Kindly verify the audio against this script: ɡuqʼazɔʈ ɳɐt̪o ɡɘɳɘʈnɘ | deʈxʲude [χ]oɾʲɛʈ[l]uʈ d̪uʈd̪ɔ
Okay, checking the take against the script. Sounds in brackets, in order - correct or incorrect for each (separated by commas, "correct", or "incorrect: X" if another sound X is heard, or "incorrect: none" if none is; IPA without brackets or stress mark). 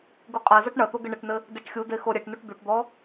incorrect: x, incorrect: n